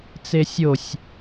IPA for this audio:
t͡sesʲosʲ

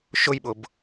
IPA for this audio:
ʃʊjɓʊb

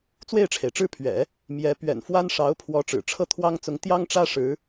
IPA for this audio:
t͡swe˥˩ɪ̯ʈ͡ʂʰe˩ɪ̯ʈ͡ʂɻ̩˥˩ pʰɥɛ̰˨˩˦ | mjɛ˧˥ pɥɛ̰˨˩nfwa˥n ʂɑ˧˥ʊ̯pʰwɔ˧˥ ʈ͡ʂɻ̩˨˩ʈ͡ʂʰɤ˥˩t̪ʰwɑ˥ŋ t͡sʊ˧˥ŋ t̪jɑ˥ŋʈ͡ʂä˥ ʂɻ̩˧˥

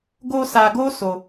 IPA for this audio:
ɡo˧ sa˧ɡo˦ so˧

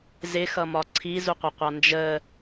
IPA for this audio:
zɪxʌmɒ ǀʰizuqʷɪqʷɑ nd͡ʒə

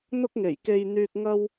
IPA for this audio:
n̪ʊ˧k̚ŋe˨˩jke˨j n̪yː˧k̚ ŋɐ˧w

